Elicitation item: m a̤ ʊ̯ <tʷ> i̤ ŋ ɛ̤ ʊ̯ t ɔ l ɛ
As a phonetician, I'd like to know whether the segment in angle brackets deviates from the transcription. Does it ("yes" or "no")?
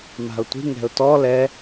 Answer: no